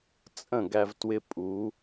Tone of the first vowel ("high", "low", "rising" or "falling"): falling